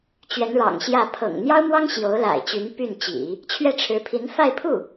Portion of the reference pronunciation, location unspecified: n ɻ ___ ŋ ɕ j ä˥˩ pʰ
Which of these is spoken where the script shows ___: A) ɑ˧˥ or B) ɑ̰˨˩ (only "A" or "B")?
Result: B